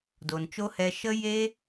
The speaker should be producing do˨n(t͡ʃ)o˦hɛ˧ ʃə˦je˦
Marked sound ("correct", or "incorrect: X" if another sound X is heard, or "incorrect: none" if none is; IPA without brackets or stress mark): correct